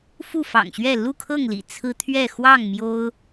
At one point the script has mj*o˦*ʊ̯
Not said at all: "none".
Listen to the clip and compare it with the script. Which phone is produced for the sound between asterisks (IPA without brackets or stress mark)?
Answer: o˦